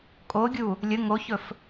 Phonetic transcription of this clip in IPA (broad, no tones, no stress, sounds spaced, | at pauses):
kʼ o ɡʲ u | lʲ ə ŋ o ç ɵ f